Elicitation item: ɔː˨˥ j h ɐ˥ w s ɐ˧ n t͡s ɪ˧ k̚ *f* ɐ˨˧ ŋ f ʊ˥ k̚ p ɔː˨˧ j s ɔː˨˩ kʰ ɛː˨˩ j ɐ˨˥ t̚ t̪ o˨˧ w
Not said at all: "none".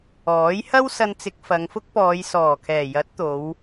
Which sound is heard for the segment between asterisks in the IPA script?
f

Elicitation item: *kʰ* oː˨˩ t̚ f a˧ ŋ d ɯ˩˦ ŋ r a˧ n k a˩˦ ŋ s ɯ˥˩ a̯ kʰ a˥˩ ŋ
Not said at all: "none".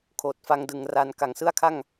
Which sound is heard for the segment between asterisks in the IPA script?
kʰ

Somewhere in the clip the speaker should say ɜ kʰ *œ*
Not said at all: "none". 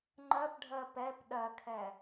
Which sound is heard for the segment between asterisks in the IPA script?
ɛ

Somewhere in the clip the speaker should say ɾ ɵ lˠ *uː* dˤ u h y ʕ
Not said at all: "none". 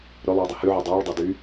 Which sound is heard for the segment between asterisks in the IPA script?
uː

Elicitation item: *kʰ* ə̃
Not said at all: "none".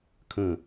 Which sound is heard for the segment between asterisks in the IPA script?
kʰ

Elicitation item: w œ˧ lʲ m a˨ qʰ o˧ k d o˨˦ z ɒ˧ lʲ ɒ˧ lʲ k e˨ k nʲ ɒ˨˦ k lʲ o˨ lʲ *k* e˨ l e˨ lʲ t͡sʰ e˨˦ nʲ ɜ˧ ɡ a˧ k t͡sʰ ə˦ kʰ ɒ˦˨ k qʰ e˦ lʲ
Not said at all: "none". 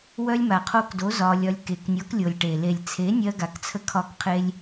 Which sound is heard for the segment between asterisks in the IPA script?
ʈ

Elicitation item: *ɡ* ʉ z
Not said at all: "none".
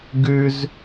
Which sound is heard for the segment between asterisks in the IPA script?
ɡ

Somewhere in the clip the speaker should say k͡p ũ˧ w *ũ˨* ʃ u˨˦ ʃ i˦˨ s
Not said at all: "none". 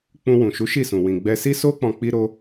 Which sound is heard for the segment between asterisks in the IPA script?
ũ˨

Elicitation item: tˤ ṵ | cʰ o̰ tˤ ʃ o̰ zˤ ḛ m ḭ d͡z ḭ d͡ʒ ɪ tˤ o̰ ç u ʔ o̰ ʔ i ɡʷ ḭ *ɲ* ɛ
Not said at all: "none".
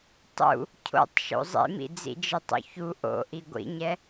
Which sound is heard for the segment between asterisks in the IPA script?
ɲ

